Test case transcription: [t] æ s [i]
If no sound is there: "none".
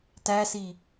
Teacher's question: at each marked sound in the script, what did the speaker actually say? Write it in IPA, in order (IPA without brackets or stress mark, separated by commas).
t, i